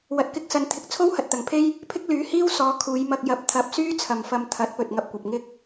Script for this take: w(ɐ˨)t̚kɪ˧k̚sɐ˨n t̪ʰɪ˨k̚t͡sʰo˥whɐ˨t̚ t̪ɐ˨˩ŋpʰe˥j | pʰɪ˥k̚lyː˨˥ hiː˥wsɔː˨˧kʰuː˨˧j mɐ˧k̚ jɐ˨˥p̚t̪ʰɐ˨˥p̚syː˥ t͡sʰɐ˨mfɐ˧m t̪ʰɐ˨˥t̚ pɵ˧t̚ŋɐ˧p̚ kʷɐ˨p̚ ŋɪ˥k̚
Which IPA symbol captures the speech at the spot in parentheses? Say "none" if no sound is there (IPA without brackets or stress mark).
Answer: ɐ˨